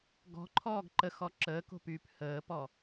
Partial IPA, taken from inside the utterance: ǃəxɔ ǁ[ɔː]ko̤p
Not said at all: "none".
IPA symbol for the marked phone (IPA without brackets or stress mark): əː